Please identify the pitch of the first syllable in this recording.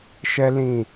high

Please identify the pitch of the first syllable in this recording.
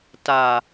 low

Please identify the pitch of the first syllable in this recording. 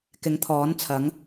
rising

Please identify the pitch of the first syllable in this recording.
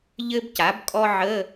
high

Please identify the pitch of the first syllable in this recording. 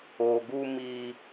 low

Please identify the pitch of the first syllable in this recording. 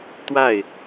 falling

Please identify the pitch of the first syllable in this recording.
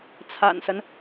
low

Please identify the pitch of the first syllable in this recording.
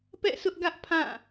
falling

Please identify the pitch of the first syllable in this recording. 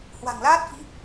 low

